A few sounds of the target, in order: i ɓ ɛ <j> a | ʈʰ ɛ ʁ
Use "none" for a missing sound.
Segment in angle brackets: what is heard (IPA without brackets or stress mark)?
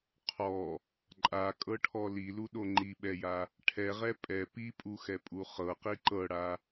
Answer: j